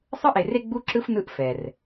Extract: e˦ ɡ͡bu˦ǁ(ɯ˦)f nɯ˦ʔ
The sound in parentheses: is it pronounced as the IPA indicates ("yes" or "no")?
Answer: yes